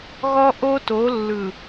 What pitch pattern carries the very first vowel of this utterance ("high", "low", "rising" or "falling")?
high